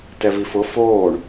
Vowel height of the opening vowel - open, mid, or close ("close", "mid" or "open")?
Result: mid